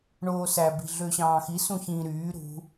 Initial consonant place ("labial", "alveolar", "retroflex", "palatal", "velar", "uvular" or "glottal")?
retroflex